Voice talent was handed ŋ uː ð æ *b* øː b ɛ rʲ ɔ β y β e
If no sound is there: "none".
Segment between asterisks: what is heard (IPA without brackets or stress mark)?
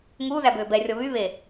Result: b